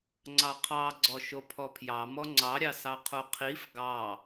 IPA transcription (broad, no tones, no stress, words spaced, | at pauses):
ŋ͡ǀɑqʰɑ ɡ͡ǀɔʃopʰɔpʰjɑ mɔŋ͡ǀɑɾʲɑ sɑqʰoqʰif ɡɑ